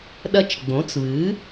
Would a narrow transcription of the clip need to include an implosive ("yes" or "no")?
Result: yes